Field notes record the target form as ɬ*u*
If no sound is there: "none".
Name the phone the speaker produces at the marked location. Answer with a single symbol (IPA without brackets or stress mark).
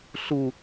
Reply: u